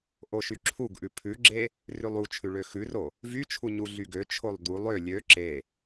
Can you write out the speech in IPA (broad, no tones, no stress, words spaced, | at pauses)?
ʔoʃyǁʰuɡʔʉ pʰʉɡ͡ǁe | rʉlˠut͡ʃʰʉ ɭøxʉro | vyt͡ʃʰu ɲuɮyɡøt͡ʃʰolˠ d̪ulˠ ø lʲø ǁe